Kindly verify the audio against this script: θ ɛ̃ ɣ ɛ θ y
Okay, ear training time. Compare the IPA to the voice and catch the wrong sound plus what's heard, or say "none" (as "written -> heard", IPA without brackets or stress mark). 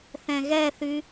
none